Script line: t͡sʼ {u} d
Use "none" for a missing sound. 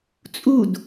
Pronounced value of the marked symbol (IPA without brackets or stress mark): u